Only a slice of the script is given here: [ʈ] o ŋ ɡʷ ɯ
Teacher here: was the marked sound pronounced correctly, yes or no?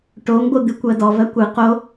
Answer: yes